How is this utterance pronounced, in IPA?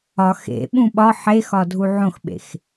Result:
ɒx ḛɓũ ɓɒ ħexɒdʱu ʕõxɓḛx

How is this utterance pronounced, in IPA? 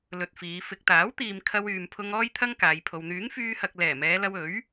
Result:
lɵ˧t̚fiː˨˧ fɪ˨k̚t̪aː˨˥wt̪iː˨m kʰɐ˧wyː˨mpʰʊ˧ŋ ɔː˥jt̪ʰɐ˥ŋ kaː˨˧jpʰo˧w n̪yː˨˥ŋfyː˧hɐ˨k̚ lɛː˨˩mɛː˨˧lɐ˧w ɵ˨˥ɥ

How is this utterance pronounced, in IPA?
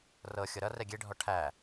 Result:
rɤ xʲɤɾʌ rɛɡʲe ɖʱɔʈʰæ

